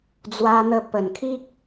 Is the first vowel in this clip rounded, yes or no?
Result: no